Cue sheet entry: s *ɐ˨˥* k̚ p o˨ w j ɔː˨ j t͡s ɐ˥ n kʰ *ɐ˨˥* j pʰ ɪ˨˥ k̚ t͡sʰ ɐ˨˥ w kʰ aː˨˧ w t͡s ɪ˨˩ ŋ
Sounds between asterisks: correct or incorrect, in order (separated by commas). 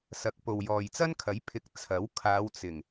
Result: correct, correct